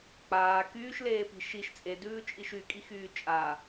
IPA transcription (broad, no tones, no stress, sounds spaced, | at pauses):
k͡p aː k yː ʃ l eː p i̤ ʃ i ʃ t͡sʼ e d ʉː t͡ʃʼ i ʃ y kʼ i x yː t͡ʃʼ a